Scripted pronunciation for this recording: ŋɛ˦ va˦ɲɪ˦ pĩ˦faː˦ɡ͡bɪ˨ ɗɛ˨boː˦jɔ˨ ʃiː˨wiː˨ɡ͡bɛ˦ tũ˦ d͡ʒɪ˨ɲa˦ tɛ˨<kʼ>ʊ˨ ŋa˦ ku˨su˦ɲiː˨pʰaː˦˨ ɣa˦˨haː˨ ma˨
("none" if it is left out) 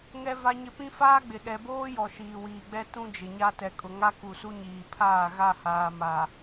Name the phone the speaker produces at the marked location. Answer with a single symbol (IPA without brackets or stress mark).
kʼ